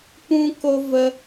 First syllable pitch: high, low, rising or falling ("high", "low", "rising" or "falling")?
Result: high